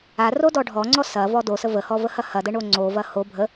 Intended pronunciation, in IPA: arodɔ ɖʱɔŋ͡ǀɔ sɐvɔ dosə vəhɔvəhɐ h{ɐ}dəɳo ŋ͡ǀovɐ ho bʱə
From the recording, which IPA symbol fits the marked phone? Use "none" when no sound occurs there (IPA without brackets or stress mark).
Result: ɐ